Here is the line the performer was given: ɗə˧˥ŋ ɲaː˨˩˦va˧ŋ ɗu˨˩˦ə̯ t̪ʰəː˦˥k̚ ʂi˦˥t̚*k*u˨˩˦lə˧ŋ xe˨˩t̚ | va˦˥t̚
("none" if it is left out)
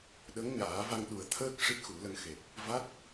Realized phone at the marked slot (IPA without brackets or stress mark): x